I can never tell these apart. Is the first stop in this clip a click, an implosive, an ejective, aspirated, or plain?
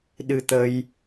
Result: implosive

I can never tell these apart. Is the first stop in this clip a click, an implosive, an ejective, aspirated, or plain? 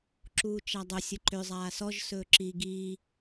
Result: click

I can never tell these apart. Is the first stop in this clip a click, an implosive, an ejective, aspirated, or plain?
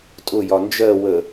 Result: ejective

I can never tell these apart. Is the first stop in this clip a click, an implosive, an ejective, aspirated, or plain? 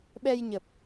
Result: implosive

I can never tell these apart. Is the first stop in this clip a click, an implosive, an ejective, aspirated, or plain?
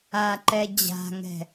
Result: click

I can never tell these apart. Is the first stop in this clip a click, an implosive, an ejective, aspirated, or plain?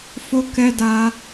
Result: plain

